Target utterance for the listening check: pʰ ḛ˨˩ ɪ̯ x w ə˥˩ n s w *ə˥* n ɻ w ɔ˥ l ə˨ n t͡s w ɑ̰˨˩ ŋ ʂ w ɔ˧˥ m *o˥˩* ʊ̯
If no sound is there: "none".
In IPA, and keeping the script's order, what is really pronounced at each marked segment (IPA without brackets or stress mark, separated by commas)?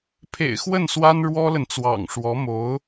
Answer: a˥, o˧˥